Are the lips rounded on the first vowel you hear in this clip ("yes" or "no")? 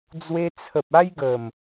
no